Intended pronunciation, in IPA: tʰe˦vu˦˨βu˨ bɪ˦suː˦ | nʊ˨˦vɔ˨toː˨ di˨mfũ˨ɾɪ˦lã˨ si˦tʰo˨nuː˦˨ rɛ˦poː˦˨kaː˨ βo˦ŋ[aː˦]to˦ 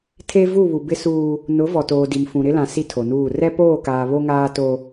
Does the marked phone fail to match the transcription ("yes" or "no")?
no